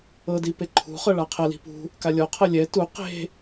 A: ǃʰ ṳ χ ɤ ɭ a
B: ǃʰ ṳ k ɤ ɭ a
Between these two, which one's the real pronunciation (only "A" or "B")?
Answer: A